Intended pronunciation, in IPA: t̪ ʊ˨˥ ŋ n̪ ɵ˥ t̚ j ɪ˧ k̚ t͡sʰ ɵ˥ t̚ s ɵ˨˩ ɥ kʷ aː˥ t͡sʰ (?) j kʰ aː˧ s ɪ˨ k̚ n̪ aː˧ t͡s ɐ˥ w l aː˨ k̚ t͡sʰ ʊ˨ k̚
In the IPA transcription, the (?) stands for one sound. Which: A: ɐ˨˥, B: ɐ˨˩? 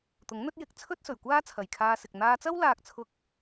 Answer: B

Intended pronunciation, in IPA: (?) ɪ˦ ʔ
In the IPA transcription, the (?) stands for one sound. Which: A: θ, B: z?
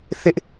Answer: A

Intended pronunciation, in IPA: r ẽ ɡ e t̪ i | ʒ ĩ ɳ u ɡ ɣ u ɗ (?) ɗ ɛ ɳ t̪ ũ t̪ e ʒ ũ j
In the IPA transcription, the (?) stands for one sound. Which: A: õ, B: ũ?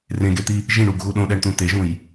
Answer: A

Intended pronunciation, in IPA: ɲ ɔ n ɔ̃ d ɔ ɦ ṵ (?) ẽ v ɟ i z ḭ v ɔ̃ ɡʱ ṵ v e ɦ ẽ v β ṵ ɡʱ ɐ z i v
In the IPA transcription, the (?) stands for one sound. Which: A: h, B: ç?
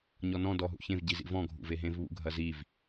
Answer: B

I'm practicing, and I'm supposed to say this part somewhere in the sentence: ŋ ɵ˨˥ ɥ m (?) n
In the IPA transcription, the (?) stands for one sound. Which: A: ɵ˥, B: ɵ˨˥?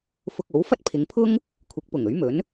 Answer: B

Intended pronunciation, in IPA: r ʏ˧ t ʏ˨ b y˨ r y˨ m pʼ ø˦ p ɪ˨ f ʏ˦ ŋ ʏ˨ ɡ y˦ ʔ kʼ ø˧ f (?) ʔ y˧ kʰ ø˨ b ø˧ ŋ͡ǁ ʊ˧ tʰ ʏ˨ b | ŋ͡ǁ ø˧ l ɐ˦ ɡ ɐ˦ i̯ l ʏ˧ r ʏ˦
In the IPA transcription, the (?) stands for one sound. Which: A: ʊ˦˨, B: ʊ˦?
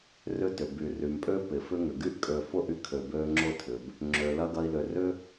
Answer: A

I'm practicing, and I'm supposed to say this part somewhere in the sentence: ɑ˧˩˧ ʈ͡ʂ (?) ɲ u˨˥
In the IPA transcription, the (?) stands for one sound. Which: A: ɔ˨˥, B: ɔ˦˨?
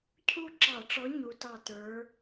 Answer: A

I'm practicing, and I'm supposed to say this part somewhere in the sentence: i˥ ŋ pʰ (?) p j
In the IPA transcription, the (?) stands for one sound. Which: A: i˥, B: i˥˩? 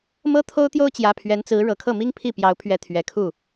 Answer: B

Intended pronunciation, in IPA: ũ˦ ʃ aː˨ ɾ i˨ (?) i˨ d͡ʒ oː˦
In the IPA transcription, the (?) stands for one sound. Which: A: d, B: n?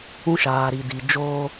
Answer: A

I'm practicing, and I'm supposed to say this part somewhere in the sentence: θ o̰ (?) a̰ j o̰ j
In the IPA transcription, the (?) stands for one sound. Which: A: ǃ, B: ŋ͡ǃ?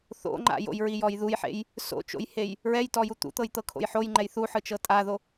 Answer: B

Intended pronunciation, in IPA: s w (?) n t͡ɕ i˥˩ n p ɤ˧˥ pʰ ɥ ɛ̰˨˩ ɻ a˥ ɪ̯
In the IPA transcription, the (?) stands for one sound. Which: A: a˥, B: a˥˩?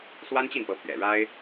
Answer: A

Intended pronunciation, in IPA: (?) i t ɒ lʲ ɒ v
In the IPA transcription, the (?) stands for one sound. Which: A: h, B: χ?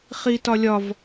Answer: B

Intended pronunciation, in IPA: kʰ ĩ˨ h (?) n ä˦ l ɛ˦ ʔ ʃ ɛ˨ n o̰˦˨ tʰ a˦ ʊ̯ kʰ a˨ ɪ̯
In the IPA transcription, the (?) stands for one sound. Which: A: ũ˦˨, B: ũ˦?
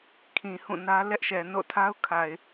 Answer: A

